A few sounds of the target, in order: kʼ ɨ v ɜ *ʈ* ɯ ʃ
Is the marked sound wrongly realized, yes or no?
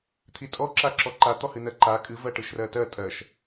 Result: no